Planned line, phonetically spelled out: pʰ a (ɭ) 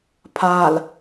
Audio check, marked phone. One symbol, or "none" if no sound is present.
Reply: l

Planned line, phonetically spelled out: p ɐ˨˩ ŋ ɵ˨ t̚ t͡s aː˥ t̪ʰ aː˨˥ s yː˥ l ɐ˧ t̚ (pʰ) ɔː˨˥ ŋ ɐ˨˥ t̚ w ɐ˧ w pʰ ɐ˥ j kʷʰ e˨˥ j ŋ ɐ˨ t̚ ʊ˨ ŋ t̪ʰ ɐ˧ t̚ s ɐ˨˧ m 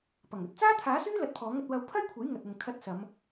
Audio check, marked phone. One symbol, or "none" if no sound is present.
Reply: pʰ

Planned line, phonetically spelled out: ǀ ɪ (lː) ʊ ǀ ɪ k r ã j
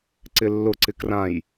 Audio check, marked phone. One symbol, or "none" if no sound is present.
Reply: lː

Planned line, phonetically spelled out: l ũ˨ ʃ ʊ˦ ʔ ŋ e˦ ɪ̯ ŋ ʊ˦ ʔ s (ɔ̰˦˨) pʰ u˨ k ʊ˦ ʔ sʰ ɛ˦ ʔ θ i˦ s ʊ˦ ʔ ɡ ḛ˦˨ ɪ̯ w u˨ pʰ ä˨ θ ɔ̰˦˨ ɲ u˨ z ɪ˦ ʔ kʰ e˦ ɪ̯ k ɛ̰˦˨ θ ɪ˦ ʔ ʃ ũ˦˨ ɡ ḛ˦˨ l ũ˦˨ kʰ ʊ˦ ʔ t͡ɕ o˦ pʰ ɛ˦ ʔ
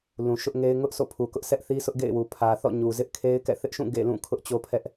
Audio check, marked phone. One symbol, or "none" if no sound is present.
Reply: o̰˦˨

